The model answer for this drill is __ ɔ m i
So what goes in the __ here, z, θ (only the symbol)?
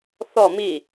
θ